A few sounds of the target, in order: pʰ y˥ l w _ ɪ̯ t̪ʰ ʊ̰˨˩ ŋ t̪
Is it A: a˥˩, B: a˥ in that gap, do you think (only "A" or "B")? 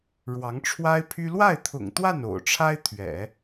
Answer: A